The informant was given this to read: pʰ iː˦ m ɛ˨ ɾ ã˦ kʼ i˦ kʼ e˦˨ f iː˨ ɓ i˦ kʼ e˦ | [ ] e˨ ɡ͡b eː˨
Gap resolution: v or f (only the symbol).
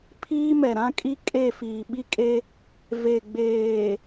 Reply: v